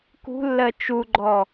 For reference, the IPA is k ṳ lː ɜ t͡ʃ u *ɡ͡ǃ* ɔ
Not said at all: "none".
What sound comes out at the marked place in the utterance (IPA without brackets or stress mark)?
ɡ͡ǃ